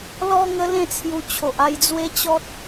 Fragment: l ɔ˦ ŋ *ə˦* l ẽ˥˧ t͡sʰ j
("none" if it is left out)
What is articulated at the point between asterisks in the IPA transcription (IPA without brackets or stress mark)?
ə˦